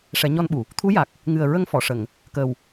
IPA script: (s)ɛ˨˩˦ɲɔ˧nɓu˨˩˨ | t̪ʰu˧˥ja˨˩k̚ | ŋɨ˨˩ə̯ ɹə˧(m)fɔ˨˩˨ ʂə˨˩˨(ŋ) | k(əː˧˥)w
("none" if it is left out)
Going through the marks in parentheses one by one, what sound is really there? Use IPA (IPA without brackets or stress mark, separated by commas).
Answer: ʂ, ŋ, ŋ, əː˨˩